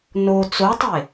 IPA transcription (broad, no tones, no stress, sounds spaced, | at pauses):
n o t͡s o tˤ e